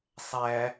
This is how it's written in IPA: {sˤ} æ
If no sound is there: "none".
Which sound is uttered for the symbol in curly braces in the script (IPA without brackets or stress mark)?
sˤ